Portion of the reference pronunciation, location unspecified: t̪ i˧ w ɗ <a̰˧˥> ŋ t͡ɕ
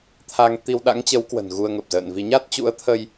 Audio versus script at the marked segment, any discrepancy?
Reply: no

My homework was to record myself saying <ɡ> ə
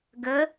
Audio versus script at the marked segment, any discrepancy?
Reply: no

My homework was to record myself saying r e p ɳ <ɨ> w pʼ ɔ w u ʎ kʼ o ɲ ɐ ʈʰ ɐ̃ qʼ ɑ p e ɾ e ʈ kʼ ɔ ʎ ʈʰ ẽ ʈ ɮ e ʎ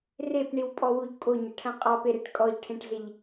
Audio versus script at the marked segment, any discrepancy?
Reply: yes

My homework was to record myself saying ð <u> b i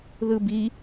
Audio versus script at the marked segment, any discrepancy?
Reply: yes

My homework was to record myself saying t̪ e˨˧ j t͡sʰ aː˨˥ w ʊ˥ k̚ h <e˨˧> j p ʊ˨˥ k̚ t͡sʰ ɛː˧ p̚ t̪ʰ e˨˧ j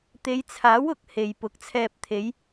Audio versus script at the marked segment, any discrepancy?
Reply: yes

